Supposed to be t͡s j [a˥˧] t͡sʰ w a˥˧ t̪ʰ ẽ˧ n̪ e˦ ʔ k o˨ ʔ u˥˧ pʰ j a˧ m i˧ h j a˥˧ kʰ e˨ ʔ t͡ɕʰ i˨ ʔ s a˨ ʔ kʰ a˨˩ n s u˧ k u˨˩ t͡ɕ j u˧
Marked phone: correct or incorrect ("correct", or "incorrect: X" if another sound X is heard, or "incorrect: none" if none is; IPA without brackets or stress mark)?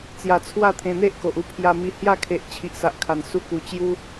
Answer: incorrect: a˧